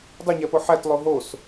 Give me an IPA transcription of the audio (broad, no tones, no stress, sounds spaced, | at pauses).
dˤ u ɲ æ p o ħ æ t lˠ o ɦ o s